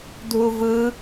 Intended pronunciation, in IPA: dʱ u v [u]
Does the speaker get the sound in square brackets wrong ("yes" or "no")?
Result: yes